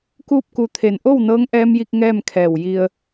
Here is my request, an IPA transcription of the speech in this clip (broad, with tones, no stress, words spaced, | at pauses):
kuː˥˨p̚ku˧t̪ʰe˧˩n ʔo˥˨wnɤː˧˥ŋʔɛː˧mji˧k̚ ŋɛː˥˨mkʰɛː˧˩w ji˧ə̯